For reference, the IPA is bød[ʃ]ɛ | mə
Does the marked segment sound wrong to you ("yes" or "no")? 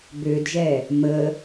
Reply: yes